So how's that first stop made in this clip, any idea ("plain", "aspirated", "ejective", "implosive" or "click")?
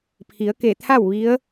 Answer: aspirated